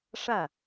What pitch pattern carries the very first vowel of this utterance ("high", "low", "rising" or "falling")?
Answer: falling